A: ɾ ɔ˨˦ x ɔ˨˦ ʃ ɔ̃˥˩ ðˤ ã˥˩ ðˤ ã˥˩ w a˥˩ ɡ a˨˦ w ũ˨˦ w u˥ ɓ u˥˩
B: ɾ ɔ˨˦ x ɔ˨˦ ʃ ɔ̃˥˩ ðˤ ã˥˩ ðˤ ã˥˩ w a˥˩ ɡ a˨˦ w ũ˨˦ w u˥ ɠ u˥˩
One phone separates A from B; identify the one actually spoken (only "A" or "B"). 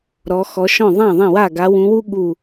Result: B